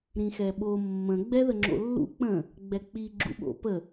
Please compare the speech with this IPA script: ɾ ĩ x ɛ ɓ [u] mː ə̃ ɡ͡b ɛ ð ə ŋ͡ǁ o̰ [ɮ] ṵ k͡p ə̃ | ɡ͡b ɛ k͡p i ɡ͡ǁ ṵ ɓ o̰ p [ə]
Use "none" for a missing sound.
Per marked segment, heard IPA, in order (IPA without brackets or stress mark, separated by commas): o, lː, ə